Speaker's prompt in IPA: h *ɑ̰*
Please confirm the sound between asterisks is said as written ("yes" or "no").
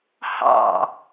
yes